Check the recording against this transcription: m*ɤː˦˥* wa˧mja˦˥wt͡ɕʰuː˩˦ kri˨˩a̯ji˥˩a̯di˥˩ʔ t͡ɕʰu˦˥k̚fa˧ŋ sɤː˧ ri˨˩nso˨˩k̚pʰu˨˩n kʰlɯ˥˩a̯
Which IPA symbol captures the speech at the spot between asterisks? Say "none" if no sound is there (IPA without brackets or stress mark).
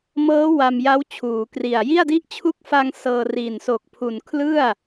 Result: ɤː˦˥